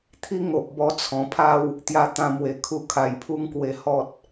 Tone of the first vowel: high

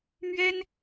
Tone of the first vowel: high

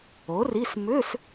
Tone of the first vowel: rising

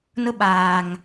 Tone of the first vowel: high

